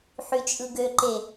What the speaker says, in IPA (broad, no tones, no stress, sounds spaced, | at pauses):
ħ y t͡ʃʼ ɯ ɡ ø ǃ e